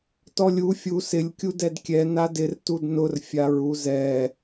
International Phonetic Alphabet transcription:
t ɔ lʲ u fʲ u s ɪ lʲ kʲ u d ɛ d kʲ ɛ n a d ɪ r t u d n ʊ r fʲ a ɹ u z ɛ

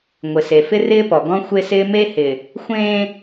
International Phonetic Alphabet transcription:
ŋʷ ɪ˨ s e˨ f ɪ˦ r ɪː˦ p ɔ˨ ɡ ɔ̃˦ xʷ e˦ s ɪː˦ m e˦ h ɪ˨ | xʷ ẽː˦

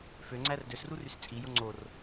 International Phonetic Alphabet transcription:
f ø ŋ͡ǀ æ r d ø s r u r y s t͡sʼ i j o ŋ͡ǀ o r

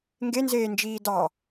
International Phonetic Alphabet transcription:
ŋ ɡ e n z eː n d͡ʒ iː d ɑ

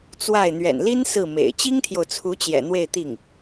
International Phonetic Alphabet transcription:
t͡s w a˥˩ ɪ̯ n̪ ɥ ɛ̰˨˩ n l i˥ n s ɹ̩˥˩ m ḛ˨˩ ɪ̯ t͡ɕ i˥ ŋ t̪ʰ j o˨ ʊ̯ t͡sʰ u˧˥ t͡ɕ j ɛ̰˨˩ n̪ w e˥˧ ɪ̯ t̪ i˥˩ ŋ

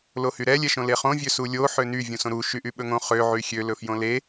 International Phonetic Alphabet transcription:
l o h y ɾ ɛ lʲ ɛ ʃ õ l e χ õ vʲ ø s u lʲ o ħ ø n y vʲ ũ s õ ɾ u ʃ y ʔ y ɓ ɵ ŋ õ χ ø ʕ y xʲ ø l ɵ f j õ l e

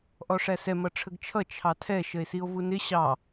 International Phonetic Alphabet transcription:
ʔ ɔ ʂ æ s ɛ m ʌ ʈ͡ʂʰ ə ɡ t͡ʃʰ ʌ t͡ʃʰ ɑ tʰ ɛ ʃ ə e̯ s i o̯ v u n ɪ ɕ ɑ

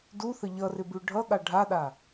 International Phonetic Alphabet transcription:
d u θ ə ʎ ʌ r ɪ b ʉ ɖʱ ʌ ɠ a ɖʱ a ɗ a

